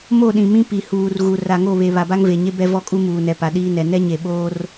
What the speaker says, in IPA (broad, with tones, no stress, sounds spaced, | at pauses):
m o˦˨ ɗ ĩ˨ m ĩ˦ p i˨ h uː˨ r ɣ u˨ r a˨ ŋ o˦˨ β e˨ β a˨ b a˦ ŋ v e˨ ɲ e˦ b ɛ˦ v ɔ˦ kʼ u˦ m uː˨ n ɛ˨ p a˨ ɗ iː˦ n ɛ˨ n ɛ˦ ɲ e˨ ɓ oː˦ r